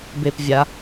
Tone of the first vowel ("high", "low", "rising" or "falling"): low